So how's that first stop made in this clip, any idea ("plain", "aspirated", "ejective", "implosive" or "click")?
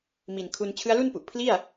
aspirated